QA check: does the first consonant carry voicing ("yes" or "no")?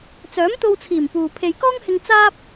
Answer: no